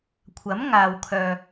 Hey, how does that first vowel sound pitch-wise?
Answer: rising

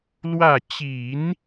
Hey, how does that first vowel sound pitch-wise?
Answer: falling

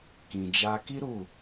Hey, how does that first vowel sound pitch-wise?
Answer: low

